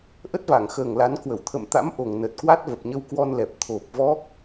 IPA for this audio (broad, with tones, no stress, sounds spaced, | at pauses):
ʔ ə˦˥ t̚ v a˧˩ ŋ x əː˨˩ ŋ l a˨˦ n k w ə˧˩ w t̪ʰ ə̰˧˨ m t̪ a̰˧˥ m ʔ o˨˩ ŋ n ə˨˩ t̚ k w a˦˥ t̚ v ə˨˩ p̚ ɲ ə˧ w k w ɔ˧ n l ɛ˨˩ p̚ t̪ʰ o˨˩ p̚ v ɔ˦˥ k̚